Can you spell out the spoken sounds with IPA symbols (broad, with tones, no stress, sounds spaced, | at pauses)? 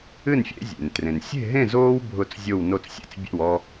ɨ˥˨ n fʲ ḛ˦ zʲ ḛ˩ n t r ẽ˩ n sʲ e̤˥˨ ɦ ẽ˥˨ z oː˦ w bʱ ʊ˥˨ t͡s zʲ o˥˨ w n o˥˨ t͡s sʲ ḛ˦ t͡s bʲ ḛ˥˨ w ɔ˦